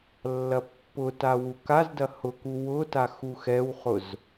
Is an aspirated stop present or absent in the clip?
absent